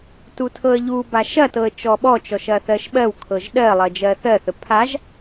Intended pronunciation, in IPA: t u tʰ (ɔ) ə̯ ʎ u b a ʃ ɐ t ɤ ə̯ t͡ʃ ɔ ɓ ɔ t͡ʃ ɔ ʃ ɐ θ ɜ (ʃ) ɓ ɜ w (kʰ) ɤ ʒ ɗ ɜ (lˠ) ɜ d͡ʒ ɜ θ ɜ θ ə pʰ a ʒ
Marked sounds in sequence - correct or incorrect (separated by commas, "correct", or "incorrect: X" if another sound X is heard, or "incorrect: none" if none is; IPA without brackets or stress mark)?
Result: incorrect: ɤ, correct, correct, correct